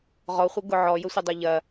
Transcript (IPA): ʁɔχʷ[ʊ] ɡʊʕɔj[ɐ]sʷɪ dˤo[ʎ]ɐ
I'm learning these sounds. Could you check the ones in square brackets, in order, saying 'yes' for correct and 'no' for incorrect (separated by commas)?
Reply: no, no, yes